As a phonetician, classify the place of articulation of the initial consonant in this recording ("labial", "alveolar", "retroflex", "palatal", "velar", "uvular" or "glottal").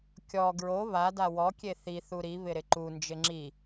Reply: velar